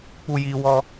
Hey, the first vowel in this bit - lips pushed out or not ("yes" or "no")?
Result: yes